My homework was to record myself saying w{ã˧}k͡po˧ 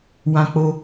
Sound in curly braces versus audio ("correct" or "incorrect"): correct